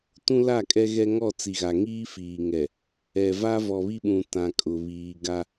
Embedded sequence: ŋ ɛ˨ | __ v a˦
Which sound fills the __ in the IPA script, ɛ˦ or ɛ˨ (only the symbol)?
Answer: ɛ˨